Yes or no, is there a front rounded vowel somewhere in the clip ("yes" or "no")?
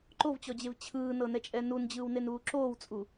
no